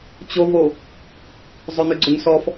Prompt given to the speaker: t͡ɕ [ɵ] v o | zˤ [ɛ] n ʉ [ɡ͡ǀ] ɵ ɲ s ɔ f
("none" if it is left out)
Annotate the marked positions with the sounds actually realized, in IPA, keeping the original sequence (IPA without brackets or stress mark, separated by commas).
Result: o, ø, ɡ͡ǀ